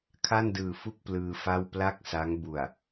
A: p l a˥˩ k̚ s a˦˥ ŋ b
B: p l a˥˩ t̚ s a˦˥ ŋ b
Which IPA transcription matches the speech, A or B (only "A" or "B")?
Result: A